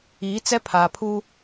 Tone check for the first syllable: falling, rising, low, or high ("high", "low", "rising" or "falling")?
rising